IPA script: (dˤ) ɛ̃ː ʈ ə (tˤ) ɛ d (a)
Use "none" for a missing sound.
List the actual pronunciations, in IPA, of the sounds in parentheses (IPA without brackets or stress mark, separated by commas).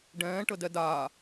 ɖ, d, aː